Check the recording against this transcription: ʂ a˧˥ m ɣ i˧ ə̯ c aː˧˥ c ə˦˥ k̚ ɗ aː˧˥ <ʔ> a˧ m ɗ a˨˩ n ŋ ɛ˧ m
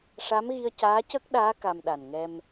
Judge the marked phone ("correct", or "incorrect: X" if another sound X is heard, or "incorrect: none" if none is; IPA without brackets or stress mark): incorrect: k